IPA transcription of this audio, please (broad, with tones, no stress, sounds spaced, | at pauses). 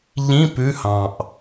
ʎ ĩ˧˥˧ p ʉ˧˥˧ h ɑ̃˨˩ ʔ